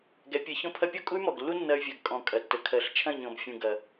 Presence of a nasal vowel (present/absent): present